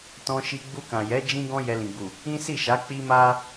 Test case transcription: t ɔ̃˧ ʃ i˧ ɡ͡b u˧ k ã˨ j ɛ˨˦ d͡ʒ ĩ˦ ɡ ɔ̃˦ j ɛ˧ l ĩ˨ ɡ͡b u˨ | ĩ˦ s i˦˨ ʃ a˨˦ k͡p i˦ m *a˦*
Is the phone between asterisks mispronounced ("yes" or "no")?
no